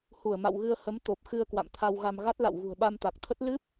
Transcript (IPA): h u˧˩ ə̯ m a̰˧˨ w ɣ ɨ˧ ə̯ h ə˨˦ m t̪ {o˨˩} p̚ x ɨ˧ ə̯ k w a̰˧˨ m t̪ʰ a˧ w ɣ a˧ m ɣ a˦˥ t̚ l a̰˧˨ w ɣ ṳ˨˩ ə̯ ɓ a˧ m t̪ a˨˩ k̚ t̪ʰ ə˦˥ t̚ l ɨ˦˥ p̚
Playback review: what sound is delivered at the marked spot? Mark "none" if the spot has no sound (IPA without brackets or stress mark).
o˨˩